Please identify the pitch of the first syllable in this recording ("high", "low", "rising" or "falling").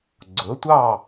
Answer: rising